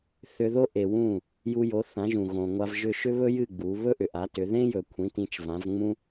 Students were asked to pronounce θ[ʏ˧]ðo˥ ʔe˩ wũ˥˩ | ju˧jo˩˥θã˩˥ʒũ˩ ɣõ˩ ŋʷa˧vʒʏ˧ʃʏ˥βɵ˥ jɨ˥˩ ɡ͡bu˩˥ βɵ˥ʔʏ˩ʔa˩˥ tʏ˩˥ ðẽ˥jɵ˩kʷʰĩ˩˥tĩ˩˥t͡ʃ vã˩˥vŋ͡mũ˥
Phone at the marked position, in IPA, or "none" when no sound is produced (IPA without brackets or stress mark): ʏ˧